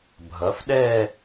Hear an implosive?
yes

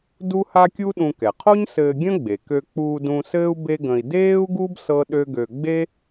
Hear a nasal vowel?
yes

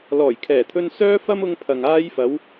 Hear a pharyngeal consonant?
no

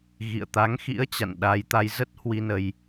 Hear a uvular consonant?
no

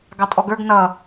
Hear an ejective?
yes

